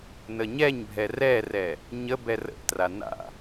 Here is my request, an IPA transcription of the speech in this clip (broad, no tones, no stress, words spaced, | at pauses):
nəɲɛɲbʱɛ rɛrɛ | ɲə bɛrə̰ʔtra na̰